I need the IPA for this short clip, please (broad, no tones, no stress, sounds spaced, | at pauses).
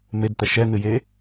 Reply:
m e d t̪ ɐ ʃ ɛ n̪ ɨ j e